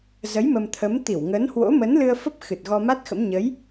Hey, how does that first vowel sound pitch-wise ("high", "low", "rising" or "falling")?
rising